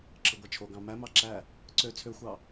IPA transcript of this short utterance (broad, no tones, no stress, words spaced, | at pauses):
ǁɯɡʷæt͡ʃʰoɡɑ̃ mæmɑ ǁæ | ǀø t͡sʰøxʷɑ